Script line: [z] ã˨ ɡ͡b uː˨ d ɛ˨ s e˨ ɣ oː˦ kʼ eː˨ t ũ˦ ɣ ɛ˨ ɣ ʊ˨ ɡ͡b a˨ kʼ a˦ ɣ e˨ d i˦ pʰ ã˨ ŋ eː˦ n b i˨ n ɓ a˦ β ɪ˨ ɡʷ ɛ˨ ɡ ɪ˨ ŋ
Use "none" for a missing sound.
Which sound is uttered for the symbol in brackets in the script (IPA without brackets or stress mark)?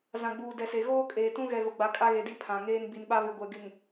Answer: z